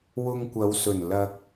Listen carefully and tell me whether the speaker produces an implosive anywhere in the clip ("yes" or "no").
no